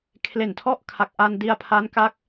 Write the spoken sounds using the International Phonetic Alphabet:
kʰ l e˨˩ n tʰ ɔ˥˩ ʔ kʰ a˨˩ k̚ ʔ a˧ n d i˧ a̯ pʰ a˦˥ n k a˦˥ k̚

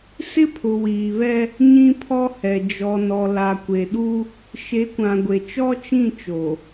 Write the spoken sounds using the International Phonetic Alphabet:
s ɪ˦ pʰ ʊ˨ w iː˨ β ɛ˦ | ɲ ĩ˦ pʰ ɔ˦ h ɛ˨ d͡ʒ ɔ˨ n ɔ˨ l a˨ kʷ e˨ ɗ u˦ | ʃ e˨˦ kʷ ã˨ ɡʷ e˨ t͡ʃ ɔ˦ t͡ʃ ĩ˦˨ t͡ʃ o˨

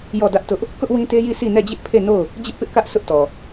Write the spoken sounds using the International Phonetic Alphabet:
j ɔ˦˨ d ä˦ ʔ t ʊ˦ ʔ | k ʊ˦ ʔ w ĩ˦ t e˦ j i˦˨ sʰ i˦˨ n ɛ˦˨ d͡ʑ ɪ˦ ʔ pʰ e˦˨ n o˦˨ ʊ̯ | d͡ʑ ɪ˦ ʔ p ɪ˦ ʔ k ä˦ ʔ sʰ ʊ˦ ʔ t ɔ˨

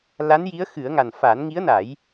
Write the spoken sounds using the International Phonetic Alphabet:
l a˧˥ n j i˧˥ ə̯ x ɨ˨˩˦ ə̯ ŋ a˨˩ n f aː˨˩˦ n ŋ i˧˥ ə̯ n a˨˩˦ j

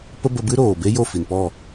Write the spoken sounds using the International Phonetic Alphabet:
p ə˦ b ə˧ b ɨ˦ ɾ oː˨ b e˦ j o˦˨ f i˨ n p ɔ˦˨

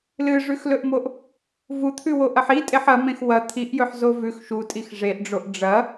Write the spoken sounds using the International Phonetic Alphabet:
l ɨ ʐ ʉ x l ɵ ʔ m o ʔ | v u t̪ʰ ʉ w o ʔ ɐ ħ i tʼ e ħ ɐ m ẽ x w ɐ t̪ʰ i ʔ j ɵ ħ z o v ʉ x ʃ u tʼ i x ʐ e ʔ ɖ͡ʐ o ʔ ɖ͡ʐ ɐ

